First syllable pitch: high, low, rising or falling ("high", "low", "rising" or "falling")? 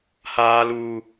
high